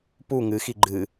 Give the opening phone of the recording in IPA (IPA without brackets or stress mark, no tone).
p